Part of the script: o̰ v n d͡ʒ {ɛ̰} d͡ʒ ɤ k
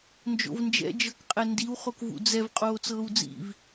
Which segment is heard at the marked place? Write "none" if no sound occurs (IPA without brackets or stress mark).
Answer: ɛ̰